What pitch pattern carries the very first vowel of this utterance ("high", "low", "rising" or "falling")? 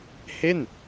falling